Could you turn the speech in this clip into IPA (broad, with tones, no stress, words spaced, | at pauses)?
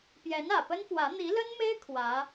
pjɛ˧˥nä˨˩pə˥nfwä˧˥ n̪i˧˥lə˥nme˥ɪ̯ kʰwä˧˥